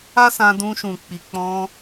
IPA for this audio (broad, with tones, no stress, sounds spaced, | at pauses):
a˦ s ã˧ d ũ˧ ʃ ũ˨ k͡p i˨ k͡p ɔ̃˧